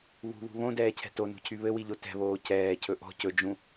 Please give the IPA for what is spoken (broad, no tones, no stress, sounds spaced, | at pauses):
β ṳ β ṳ β õ d ɛː cʰ ɛ̤ t o n ṳ cʰ y β ɘ w i ʎ o t ɛ̤ β oː c ɛː cʰ ɵ ʔ ɔ̤ c ɵ d͡ʒ ũ